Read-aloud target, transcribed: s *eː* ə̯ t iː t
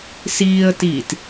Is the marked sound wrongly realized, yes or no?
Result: yes